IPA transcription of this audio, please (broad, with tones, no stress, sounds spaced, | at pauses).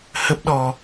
h ə˦˥ p̚ ɗ ɔ˧